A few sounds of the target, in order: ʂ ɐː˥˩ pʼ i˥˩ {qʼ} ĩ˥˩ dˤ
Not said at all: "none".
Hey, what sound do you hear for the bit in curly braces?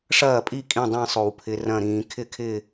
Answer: kʼ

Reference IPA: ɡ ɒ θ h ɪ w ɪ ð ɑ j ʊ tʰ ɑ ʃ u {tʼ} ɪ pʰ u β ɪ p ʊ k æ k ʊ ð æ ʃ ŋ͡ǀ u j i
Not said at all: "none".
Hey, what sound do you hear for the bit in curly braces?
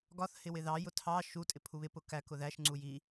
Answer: tʼ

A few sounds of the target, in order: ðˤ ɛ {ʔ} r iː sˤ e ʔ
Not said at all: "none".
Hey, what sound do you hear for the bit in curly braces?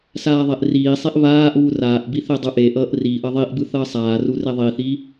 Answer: ʔ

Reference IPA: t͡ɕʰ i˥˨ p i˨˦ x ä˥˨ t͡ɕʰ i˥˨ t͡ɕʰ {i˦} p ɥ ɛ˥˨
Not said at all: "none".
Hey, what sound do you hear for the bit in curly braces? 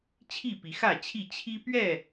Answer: i˦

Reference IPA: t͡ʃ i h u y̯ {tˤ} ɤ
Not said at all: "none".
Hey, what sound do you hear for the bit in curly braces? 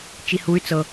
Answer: t͡s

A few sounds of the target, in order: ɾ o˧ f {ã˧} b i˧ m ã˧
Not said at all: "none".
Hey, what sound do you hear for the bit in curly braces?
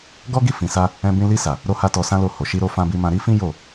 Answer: ã˧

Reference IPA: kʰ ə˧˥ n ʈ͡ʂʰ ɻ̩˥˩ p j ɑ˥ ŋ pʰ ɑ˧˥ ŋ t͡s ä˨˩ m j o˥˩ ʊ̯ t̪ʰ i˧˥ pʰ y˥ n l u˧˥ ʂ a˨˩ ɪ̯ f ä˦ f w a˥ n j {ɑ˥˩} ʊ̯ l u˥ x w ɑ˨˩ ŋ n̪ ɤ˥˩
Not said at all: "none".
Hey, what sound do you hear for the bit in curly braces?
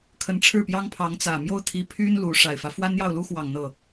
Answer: ɑ˥˩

